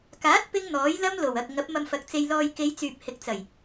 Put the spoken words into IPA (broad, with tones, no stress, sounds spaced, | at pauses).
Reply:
k aː˨˥ t̚ p ɪ˥ ŋ n̪ ɔː˨˥ j l ɐ˥ m l o˨˩ w ɐ˨ k̚ ŋ ɐ˨˥ p̚ m ɐ˧ m f ɐ˨ k̚ t͡s e˧ j l ɔː˧ j k e˨˧ j t͡s yː˨ p̚ h ɪ˨ k̚ t͡s ɐ˨˩ j